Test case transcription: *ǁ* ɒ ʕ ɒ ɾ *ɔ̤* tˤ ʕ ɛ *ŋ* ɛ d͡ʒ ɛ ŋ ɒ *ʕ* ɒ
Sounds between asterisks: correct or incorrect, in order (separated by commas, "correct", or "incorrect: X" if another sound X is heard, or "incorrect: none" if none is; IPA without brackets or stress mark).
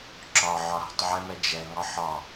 correct, correct, incorrect: m, incorrect: ħ